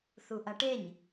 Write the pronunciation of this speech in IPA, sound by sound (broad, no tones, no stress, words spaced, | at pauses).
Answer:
θuʔɐʈeɲ